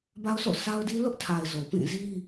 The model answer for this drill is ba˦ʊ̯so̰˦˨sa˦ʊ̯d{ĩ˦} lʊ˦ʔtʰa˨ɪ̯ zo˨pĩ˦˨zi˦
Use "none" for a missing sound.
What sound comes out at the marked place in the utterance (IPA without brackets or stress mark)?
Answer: i˦